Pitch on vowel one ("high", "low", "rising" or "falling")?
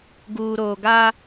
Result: low